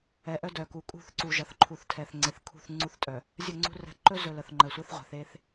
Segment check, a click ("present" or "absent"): present